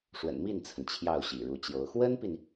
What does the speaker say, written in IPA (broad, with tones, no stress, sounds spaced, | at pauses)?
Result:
ʂ w ə̰˨˩ n m i˥˩ n t͡sʰ ə˩ n t͡ɕʰ j ɑ˥˩ ʊ̯ ɕ ḭ˨˩ ɻ u˧˥ t͡ɕ j o˧˥ ʊ̯ x w ə˥ n p i˨ n